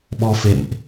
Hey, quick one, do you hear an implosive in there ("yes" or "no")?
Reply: yes